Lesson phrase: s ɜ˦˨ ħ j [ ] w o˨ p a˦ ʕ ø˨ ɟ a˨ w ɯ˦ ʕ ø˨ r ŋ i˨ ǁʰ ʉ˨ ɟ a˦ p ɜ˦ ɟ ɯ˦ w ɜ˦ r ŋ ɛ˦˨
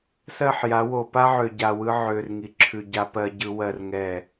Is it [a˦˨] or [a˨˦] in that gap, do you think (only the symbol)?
a˨˦